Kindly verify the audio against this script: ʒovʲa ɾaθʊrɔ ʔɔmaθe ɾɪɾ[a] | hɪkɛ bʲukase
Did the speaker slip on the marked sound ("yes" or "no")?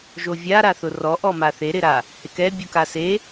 no